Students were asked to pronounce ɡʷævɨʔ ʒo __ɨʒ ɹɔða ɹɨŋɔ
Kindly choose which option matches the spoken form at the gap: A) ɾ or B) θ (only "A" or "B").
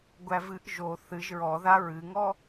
B